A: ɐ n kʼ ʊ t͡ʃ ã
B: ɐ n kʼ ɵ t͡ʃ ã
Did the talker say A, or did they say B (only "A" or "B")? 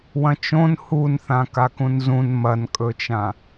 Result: B